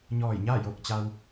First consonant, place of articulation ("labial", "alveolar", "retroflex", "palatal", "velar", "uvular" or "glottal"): palatal